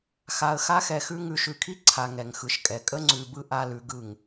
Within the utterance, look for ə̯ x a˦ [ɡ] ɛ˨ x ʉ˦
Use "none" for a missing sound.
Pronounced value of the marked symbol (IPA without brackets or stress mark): x